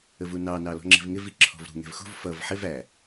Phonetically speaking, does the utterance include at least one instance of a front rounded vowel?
no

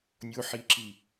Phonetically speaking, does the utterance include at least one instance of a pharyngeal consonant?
yes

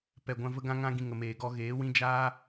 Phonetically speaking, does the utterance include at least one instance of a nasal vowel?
yes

